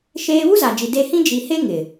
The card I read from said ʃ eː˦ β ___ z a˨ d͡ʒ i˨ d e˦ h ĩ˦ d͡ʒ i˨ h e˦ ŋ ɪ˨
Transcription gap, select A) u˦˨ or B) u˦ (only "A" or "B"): B